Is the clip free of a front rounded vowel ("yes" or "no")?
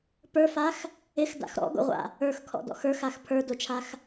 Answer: yes